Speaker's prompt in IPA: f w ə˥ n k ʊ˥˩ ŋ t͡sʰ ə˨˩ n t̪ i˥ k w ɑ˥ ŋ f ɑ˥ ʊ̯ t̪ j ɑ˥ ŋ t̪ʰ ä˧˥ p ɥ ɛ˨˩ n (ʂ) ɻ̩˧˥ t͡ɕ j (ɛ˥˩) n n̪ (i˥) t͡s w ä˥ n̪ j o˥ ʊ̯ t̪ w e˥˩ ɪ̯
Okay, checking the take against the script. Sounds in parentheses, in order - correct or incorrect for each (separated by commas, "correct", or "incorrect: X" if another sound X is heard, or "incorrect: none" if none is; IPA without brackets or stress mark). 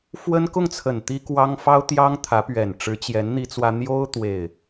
incorrect: ʈ͡ʂ, incorrect: ɛ˧˥, correct